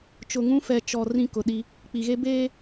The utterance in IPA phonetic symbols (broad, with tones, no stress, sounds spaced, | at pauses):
t͡ʃ ʊ˨ ŋ ũ˦ f ɛ˨ t͡ʃ ɔ˨ r ĩ˦ k ʊ˨ ɗ i˦ | k͡p i˨ ɣ e˦ b eː˦